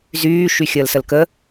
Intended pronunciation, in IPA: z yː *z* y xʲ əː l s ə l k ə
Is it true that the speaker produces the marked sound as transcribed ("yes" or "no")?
no